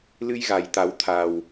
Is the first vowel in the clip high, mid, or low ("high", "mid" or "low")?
high